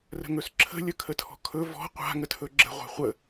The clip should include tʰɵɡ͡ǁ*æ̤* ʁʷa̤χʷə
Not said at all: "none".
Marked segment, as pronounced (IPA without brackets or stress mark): ə̤